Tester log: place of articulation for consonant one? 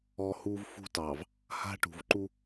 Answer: glottal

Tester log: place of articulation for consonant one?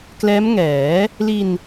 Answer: velar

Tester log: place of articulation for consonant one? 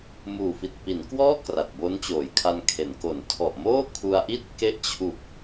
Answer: labial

